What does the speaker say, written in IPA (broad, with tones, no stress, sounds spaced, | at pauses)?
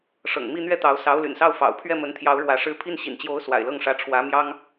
ʂ ɤ̰˨˩ ŋ m i˥˧ n̪ ɥ ɛ˥˩ t̪ ɑ˧˥ ʊ̯ s ɑ˧˥ ʊ̯ l y̰˨˩ n s ɑ˥˩ ʊ̯ f ɑ̰˨˩ ʊ̯ pʰ ɥ ɛ˥˩ m ə˧˥ n t̪ʰ j ɑ˧˥ ʊ̯ ɻ w ä˧˥ ʂ ɻ̩˥ pʰ i˥˩ n ɕ ḭ˨˩ n t͡ɕ j o˧˥ ʊ̯ s w a̰˨˩ ɪ̯ l ɤ˥˩ ŋ ʂ ä˧˥ ʈ͡ʂʰ w ä˧˥ m j ɑ˥ ŋ